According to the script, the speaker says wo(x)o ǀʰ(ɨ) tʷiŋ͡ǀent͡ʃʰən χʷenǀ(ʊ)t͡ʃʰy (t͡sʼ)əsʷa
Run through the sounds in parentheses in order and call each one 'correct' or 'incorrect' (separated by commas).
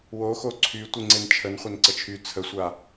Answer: correct, incorrect, incorrect, incorrect